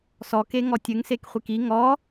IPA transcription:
s ɔ k e ŋ ɔ tʲ ɘ ŋ s e k χʷ i k i ŋ ɔ

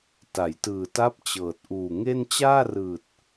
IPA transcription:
t a˩˦ j t ɯː˨˩ t a˦˥ p̚ t͡ɕ ɤː˨˩ t̚ ʔ uː˨˩ ŋ e˥˩ n t͡ɕ aː˥˩ r ɯː˨˩ t̚

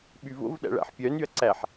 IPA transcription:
ɓ y v o̰ v ɗ æ̰ ɭ æ̰ ħ pʲ œ n y ɐ̯ ǀ æ ħ

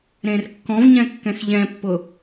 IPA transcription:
ɾ ẽ r kː ɔ̃ v ɲ ɛ̃ kː ɛ̃ x ʎ ɛ̃ pː ʊ

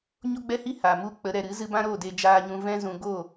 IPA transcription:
ɲ o˦ ɡ͡b ɛ˦ h i˦ h a˨ m u˦ k͡p ə˨˦ ɾ ɛ˨ ɾ ɨ˨˦ z ɨ˧ b ã˦ ɾ o˦˨ d e˧ d͡ʒ aː˨ ɲ ũ˨ v ɛ̃˧ z ũ˨ ɡ o˦˨

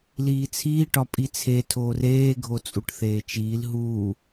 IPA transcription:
l iː t͡sʰ iː ʈ ɒ pʼ i t͡sʰ e tʰ oː r eː ɡʱ o t͡sʼ u ʈ θ eː t͡ʃ iː l ɦ u

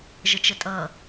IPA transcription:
ʒ ə t͡ʃ ə tʼ ʌ

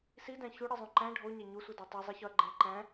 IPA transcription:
s i d æ̃ ç u ɽ i zˤ ũ ǃ æ̃ ɖʱ o ɲ æ ɲ u sʷ i d ɒ tˤ i zˤ i ç ɒ ɐ̯ ɡ͡ǃ ẽ ɐ̯ ǃ æ̃

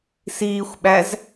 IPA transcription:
s iː xʷ ɓ æ z

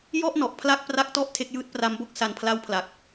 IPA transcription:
j ɔ˥˩ ʔ n ɔ˨˩ ʔ pʰ l a˥˩ k̚ p r a˦˥ k̚ t ɔ˥˩ ʔ tʰ e˦˥ k̚ j ɯː˦˥ t̚ p r a˦˥ m b o˥˩ k̚ s a˨˩ n pʰ l a˦˥ w pʰ l a˨˩ k̚

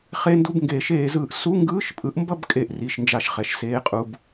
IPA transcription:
χ e˧˥˧ n d u˧˥˧ b ŋ ɡ eː˨˩˦ ʃ eː˨˩˦ z ɯː˨ ʔ s u˧˥˧ ŋ ɡ ɯː˧˥˧ ʃ pʼ ɯ˨˥ ʔ m b ʌ˥˧ b kʼ e˥˩ ʔ r i˧˥˧ ʃ n d͡ʒ a˥˩ ʃ χ ɛ˨˥ ʃ s eː˧˥˧ qʼ u˧˥˧ b

